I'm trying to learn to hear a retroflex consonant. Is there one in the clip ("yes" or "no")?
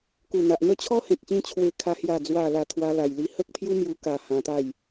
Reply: no